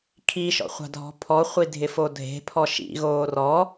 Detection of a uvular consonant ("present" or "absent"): present